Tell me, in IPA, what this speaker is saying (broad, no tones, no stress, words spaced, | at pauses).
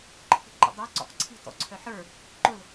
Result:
ǃʰi̤ǃə̰dˤə˞ ǀɔ̰qǀʰi̤ tɔ̰ǀʰœħə˞ | ǃʊl